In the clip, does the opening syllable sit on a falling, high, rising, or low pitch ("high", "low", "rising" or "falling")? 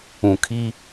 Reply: low